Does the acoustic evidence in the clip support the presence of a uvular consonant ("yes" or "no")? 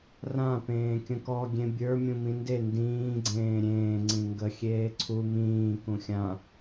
no